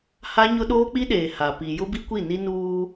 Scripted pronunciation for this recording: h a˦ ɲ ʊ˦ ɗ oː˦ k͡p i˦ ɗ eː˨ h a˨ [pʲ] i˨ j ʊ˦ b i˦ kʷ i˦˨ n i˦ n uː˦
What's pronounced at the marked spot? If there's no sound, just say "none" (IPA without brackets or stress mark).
p